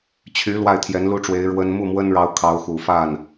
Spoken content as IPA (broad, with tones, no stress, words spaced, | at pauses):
t͡ɕʰy˧˥ lwa˥˩ɪ̯t̪ʰjɛ˧˥nlu˥ʈ͡ʂwe˧˥ɪ̯ ɻwə˥n mu˥˩mwə˥nɻɑ˧˥ʊ̯ kʰɑ˧˥ʊ̯xu˨˩fa˥˩n